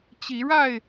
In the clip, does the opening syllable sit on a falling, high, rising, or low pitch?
rising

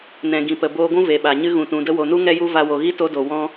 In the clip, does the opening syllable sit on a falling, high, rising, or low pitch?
low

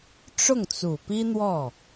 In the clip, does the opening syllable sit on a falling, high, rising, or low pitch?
falling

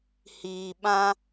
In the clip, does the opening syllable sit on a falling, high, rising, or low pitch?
low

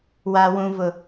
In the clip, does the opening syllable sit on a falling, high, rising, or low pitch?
high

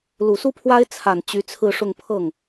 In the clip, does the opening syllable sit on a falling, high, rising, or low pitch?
low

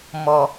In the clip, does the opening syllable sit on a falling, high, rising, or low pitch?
low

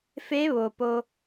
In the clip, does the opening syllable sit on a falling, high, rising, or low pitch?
rising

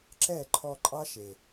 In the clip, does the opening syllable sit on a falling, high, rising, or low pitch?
falling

